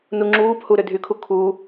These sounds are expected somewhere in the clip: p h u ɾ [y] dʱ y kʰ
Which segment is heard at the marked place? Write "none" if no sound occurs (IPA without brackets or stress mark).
ʏ